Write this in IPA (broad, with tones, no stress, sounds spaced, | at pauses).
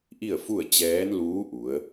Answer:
ʔ i˥˨ ə̯ f u˥˨ ə̯ t͡ɕ ɛː˧˥ n l uː˧˥ ʔ u˩˧ ə̯